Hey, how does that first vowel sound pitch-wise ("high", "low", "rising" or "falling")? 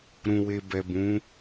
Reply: low